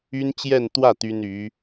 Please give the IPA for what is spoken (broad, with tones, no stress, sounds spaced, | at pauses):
y˥ n t͡ɕ j ɛ˥˧ n t̪ w ä˥˩ t̪ y˥ n y˧˥